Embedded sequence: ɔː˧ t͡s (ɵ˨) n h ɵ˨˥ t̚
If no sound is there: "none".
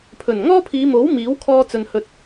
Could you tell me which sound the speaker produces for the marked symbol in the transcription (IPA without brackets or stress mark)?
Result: ɵ˨